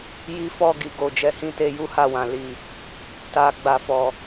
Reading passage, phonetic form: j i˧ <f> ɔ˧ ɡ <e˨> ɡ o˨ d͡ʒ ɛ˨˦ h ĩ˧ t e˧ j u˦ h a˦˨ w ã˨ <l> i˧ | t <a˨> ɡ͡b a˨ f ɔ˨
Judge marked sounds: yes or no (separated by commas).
yes, no, yes, yes